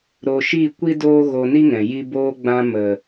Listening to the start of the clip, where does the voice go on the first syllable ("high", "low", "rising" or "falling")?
low